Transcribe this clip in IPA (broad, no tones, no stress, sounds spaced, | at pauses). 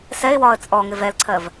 s ɛ ɪ̯ w ɒː ə̯ t͡sʼ ɔ ŋ ɪ v ɛ l ǀʰ ɜ v